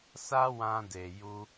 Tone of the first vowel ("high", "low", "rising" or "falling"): high